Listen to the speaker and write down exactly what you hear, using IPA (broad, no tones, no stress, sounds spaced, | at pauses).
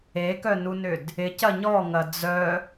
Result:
e k œ n u n ʏ d | ɪ c ɐ ɲ ɔ ŋ ɐ d͡z œ